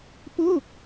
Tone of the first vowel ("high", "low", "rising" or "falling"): falling